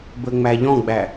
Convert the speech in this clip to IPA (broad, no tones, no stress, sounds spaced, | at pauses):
b ə ŋ͡m æ ʎ ɔ̃ ɡ͡b æ